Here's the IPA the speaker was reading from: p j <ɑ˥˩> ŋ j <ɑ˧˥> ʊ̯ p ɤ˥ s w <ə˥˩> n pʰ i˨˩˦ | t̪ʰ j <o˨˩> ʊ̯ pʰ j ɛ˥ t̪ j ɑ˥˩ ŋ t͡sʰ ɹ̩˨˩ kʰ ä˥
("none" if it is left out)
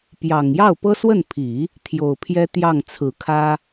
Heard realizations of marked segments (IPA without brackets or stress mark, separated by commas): ɑ˨˩, ɑ˥˩, ə˥˩, o˨˩